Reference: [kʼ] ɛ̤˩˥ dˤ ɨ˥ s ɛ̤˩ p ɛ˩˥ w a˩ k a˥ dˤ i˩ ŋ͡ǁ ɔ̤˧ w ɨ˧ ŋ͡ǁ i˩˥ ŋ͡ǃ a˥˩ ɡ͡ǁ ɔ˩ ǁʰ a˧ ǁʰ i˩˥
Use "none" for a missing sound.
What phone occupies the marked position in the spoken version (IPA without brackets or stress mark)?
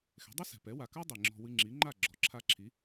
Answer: x